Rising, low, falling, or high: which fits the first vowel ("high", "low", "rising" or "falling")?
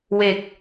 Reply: low